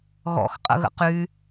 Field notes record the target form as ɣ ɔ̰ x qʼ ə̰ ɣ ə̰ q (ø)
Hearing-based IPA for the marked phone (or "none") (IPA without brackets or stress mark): y